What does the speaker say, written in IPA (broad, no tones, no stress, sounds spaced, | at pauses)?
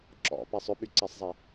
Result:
ǁ ɔ̰ p ɛ sˤ ʏ ɓ y ǀ ɛ sˤ zˤ e